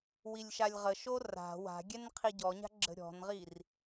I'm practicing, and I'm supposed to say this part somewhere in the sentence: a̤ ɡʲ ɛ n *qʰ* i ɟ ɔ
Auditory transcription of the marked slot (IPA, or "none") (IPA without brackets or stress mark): qʰ